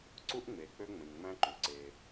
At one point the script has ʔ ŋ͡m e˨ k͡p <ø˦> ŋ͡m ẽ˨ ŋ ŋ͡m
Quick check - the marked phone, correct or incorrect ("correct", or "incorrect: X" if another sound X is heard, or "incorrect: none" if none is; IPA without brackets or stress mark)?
correct